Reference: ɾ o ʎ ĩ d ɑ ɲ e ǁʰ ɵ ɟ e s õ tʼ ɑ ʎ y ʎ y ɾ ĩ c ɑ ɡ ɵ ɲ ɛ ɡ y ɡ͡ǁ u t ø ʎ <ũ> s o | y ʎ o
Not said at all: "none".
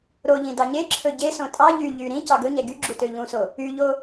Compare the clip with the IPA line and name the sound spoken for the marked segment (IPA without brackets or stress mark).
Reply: ũ